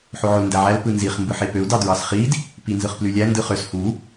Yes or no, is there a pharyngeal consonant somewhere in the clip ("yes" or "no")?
yes